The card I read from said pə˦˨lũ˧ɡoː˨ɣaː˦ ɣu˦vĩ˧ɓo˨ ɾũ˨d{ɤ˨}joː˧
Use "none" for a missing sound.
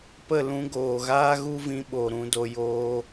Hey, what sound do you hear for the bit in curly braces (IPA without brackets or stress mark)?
o˨